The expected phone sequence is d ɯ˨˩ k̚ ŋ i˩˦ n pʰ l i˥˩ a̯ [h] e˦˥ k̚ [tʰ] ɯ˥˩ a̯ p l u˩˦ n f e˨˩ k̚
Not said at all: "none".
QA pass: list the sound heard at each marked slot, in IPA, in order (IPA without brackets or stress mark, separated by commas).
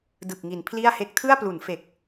h, tʰ